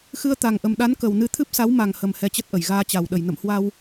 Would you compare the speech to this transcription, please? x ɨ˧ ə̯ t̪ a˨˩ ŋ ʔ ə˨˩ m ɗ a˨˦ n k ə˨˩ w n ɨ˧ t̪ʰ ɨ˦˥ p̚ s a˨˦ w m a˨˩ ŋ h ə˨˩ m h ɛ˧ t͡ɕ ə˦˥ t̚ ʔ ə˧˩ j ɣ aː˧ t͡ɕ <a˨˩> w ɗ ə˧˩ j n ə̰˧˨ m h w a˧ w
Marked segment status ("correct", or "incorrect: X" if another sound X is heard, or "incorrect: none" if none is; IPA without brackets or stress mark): correct